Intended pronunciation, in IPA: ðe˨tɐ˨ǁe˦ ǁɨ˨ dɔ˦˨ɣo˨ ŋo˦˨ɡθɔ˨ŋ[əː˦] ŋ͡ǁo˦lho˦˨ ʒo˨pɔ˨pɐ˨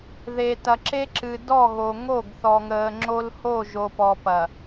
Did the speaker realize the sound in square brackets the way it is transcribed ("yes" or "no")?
no